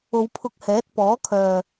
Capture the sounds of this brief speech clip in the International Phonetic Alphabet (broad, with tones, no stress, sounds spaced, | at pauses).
o˨˧ w pʰ ʊ˧ k̚ h ɛː˨˥ t̚ p ɔː˨˥ kʰ œː˨